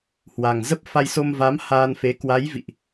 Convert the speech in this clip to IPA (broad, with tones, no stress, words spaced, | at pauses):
hwa˨˩ŋ zə˦˥p̚ fa˧jso˧mva˨˦m haː˧nfe˨˦ kwa˨˦jvḭ˧˨ʔ